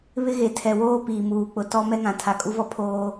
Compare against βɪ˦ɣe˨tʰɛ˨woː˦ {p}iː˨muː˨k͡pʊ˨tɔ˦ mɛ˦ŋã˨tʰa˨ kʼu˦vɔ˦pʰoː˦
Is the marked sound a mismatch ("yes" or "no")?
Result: no